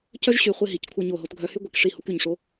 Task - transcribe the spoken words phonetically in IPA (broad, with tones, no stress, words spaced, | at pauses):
cœ˥ʒɕy˩˧ χʷe˧ɦi˩˧ckʷʰœ˧ ɲo˧˩ɦo˧tɡʱœ˧hy˥ ɡʷi˩˧kʂi˧˩ hu˧ky˧˩ɲʂo˧